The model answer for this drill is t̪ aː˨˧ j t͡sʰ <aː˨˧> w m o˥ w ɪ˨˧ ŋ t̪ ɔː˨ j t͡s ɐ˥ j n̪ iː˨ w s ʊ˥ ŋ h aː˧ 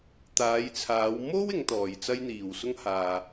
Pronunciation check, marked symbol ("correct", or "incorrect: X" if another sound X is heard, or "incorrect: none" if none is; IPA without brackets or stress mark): correct